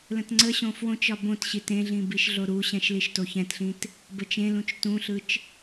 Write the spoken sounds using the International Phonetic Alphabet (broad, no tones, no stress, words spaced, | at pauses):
lə̃tŋ͡ǀəɕõ fwõt͡ʃɒ bõtɕit ẽɮĩ biʃɮoɾuɕɛ̃ʃ liʃtoçɛ̃tɬĩt | bət͡ʃẽlũt͡ʃ tũɬɯt͡ʃ